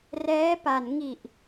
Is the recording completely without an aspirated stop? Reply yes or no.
yes